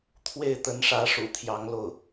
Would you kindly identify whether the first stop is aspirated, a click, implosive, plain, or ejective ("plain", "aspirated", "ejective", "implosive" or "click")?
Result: aspirated